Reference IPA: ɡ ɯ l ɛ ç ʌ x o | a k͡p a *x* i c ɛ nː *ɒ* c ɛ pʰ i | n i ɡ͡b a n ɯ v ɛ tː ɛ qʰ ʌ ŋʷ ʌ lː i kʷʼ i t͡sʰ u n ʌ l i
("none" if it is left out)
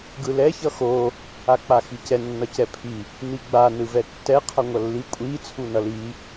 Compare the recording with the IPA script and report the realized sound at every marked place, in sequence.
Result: x, ʌ

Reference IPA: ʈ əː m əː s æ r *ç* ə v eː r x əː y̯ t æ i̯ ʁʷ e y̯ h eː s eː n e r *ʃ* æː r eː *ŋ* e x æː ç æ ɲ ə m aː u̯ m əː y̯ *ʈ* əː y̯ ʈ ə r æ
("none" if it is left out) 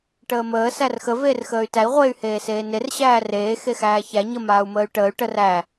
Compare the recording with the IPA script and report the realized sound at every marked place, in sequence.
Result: x, ɕ, x, ʈ

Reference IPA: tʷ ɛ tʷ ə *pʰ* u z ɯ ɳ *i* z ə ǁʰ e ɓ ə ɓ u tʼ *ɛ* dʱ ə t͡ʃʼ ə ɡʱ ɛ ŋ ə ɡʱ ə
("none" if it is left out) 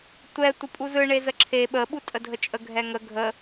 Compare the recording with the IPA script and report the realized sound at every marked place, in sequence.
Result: pʼ, e, ə

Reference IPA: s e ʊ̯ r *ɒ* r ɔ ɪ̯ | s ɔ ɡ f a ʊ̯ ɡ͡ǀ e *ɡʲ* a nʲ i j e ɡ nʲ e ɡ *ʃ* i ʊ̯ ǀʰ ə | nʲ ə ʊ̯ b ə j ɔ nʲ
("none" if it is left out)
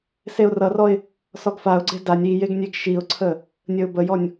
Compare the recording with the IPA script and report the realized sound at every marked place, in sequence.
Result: ʌ, d, ʃ

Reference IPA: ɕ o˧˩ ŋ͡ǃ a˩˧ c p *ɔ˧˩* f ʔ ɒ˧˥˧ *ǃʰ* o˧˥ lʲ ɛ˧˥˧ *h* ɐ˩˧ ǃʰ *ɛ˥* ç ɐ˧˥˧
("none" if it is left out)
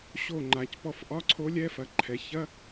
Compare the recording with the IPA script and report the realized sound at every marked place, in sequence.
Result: ɔ˧˩, ǀʰ, f, ɛ˩˧

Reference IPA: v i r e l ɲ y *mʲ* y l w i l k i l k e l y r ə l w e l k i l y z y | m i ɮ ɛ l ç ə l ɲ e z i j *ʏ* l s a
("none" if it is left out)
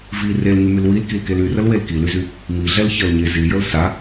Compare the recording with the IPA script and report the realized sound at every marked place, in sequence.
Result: m, ə

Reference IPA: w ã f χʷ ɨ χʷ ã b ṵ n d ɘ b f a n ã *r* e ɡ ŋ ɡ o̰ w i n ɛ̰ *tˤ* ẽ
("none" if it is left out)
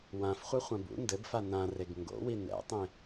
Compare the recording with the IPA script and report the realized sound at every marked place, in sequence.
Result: r, tˤ

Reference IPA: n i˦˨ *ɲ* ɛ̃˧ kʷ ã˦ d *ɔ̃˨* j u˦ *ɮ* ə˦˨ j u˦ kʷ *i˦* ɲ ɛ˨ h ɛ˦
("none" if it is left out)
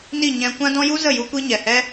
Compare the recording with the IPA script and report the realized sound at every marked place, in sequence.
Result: ɲ, ɔ̃˦, z, i˦

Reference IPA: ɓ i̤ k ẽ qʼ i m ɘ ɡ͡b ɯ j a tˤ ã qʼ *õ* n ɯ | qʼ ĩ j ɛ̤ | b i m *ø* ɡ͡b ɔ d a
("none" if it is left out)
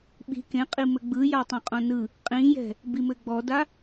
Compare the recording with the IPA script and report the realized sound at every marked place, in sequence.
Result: õ, ɘ

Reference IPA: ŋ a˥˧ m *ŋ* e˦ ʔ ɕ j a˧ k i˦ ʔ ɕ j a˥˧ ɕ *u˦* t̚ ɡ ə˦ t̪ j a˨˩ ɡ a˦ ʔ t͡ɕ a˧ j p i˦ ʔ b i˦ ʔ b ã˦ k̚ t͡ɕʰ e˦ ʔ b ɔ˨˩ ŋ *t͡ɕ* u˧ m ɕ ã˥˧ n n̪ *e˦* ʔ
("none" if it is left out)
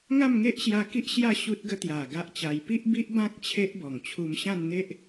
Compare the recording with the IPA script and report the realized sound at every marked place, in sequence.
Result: ŋ, u˦, t͡ɕʰ, e˦

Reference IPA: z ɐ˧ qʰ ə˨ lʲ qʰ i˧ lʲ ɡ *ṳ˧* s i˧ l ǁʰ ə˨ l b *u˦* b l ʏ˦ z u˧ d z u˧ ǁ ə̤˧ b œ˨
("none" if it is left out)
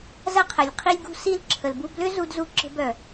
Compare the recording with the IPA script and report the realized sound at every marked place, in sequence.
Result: ṳ˧, u˧

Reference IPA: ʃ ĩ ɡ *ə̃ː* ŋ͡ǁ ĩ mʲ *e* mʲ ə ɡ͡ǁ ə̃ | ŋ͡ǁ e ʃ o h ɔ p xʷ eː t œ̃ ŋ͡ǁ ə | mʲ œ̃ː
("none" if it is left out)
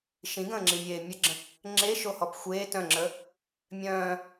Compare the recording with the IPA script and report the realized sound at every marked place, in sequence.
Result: ə̃ː, eː

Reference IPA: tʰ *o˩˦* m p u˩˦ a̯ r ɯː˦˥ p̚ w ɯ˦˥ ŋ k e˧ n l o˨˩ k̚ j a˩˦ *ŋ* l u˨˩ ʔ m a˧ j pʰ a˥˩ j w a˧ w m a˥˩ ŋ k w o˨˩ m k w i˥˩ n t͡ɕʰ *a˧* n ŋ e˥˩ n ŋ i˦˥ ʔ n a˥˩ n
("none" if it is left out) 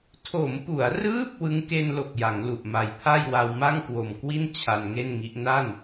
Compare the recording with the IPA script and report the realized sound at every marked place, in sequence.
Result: o˩˦, ŋ, a˧

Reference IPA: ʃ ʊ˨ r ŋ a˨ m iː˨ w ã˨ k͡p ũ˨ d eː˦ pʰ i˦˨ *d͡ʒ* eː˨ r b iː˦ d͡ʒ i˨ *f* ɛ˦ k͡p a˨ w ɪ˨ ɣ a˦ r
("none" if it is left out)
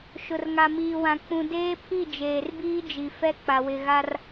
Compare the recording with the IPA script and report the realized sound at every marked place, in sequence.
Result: d͡ʒ, f

